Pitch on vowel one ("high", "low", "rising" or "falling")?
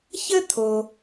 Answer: high